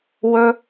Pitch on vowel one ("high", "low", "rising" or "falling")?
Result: high